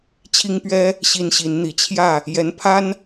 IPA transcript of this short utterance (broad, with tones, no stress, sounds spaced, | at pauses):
t͡ɕʰ i˥ ŋ p ɥ ɛ˥ | ɕ i˥ n ɕ i˧˥ n n̪ i˨˩ t͡ɕʰ j ä˥˩ | j ɛ˧˥ n pʰ a˥ n